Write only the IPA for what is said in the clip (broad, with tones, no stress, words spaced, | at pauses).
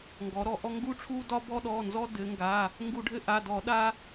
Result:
ŋɡɔ˩˧ɾɔ˧˩˧ʔɔ˦ ŋɡu˦ʈ͡ʂʰu˦dɒ˦ bɔ˦ɗɔ˩˧˩nzɔ˦ dɘ˩˧ŋɡa˩˧˩ | ŋɡu˧˩˧ɖʱɘ˦ʔa˩˧˩ dɔ˧˩˧ɗa˦